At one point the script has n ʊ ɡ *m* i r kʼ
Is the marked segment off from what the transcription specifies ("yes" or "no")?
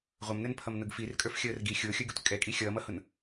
yes